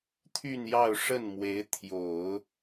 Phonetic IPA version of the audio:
t̪ʰ y˥˧ n j ɑ˥˧ ʊ̯ ʂ ə˥˩ n m w e˧˥ ɪ̯ t̪ʰ j o˨˩˦ ʊ̯

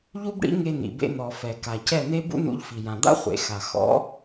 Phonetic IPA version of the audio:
ʎ u˦ b ɽ ḭ˦ ŋ e˧ n̪ ḭ˨ b ḛ˧ n̪ ɔ˨ f ɛ˨ k a˨ c ɛ˦˨ n̪ e˦ b ṵ˦ n ṵ˧ ʎ f i˨ j ã˨ d̪ a̰˦ χʷ ḛ˨ x a˨ x ɔ̰˨˦

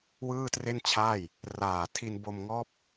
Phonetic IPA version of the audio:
w ɯː˥˩ t r e˥˩ n t͡ɕʰ aː˥˩ j | r aː˨˩ tʰ i˧ n b o˧ m ŋ ɔː˦˥ p̚

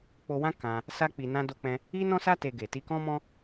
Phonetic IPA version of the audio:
k͡p o˧ w ã˦ k ã˧ | s a˦ k͡p i˧ n ã˦ d o˦ k͡p ɛ̃˦ | i˦ n ɔ̃˦ s a˦ t e˧ ɡ e˨ t i˧ k ɔ̃˦ m ɔ̃˦

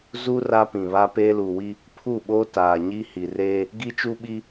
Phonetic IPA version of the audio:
z u˦ r a˦ p ĩ˨ β a˦ p eː˦ l uː˨ w i˦ | pʰ u˦˨ ɓ oː˦ t aː˨ ɲ i˦ h i˨ r eː˦ | ɡ i˦ t͡ʃ u˦ ɓ i˦

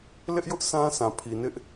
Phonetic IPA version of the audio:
l ɪ˦ ʔ j ʊ˦ ʔ sʰ ã˦ s ã˨ pʰ i˨ n ɪ˦ ʔ

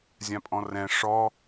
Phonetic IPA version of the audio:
zʲ ã pʼ ɔ̃ r ɛ̃ ʂ ɔ

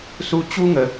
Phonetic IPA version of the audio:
s u˦ t͡ɕ u˦ ŋ ə˧

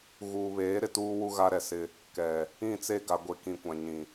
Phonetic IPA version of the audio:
ɣ uː˨ β eː˨˦ ɾ ɪ˨ t uː˦ w u˦ ɣ a˦ ɾ ɛ˨ s ɪ˦ | k ɛ˨ | ĩ˦˨ t͡s e˦˨ ɡ a˨ ɡʷ e˨ k ĩ˨ kʷ ã˨ ɲ ĩ˨

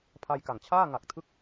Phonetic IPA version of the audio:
pʰ a˧ j k a˨˩ ŋ t͡ɕʰ aː˥˩ ŋ a˨˩ k̚ tʰ ɯ˦˥ k̚

